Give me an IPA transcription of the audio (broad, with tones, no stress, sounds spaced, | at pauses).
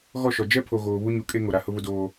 ɣ ɔ˦˨ ʃ ɔ˨ d͡ʒ ɛ˦ pʰ o˨ ɣ oː˨ β u˦ ɲ u˨ kʼ e˦ ŋ o˨ ɾ a˨ h ʊ˦ β ʊ˦ d oː˦